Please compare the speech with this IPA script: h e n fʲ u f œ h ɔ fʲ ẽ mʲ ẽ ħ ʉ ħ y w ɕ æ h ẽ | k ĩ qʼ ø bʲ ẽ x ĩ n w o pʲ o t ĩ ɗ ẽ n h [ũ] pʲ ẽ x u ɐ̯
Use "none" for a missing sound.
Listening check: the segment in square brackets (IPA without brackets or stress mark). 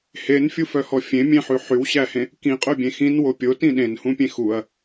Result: ũ